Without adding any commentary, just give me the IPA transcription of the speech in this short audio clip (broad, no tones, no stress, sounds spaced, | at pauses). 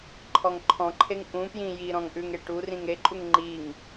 ǃʰ ɔ ŋ ǃʰ ɔ̃ ǃʰ e ŋ ʔ ũ p j ĩ j i ɾ ɔ̃ ŋ ʔ ʉ ŋ e ʈ u r ĩ ŋ ɾ e ǃʼ u ŋ ŋ͡ǃ i ŋ